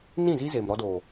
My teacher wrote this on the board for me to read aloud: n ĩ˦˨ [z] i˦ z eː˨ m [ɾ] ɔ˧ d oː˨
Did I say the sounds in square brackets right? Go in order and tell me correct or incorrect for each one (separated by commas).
correct, correct